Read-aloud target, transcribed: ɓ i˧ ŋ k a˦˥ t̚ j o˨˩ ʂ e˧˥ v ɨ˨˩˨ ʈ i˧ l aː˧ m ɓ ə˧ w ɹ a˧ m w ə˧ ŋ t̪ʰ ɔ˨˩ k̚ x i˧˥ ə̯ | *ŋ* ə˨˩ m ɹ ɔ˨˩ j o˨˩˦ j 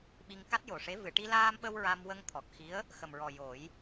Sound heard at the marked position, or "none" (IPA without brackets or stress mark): x